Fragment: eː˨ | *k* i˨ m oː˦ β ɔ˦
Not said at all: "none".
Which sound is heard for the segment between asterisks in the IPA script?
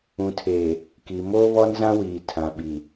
k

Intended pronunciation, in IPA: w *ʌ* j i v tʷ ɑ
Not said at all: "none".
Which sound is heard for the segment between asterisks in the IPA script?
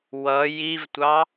ʌ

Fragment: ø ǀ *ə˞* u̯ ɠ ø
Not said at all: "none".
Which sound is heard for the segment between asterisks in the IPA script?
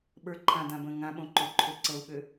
ɤ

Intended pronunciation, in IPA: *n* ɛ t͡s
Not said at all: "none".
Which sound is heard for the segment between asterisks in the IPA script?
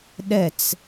ɗ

